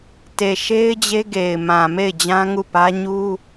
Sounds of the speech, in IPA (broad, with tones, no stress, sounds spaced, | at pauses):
t e˨ ʃ e˦ ɪ̯ d͡ʑ e˦ ɡ e˨ ɪ̯ m ã˨ m e˦˨ ɪ̯ d͡ʑ ã˦ ŋ u˦˨ p ä˦ ɲ u˦